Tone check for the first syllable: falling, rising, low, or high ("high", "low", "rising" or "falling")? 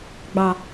low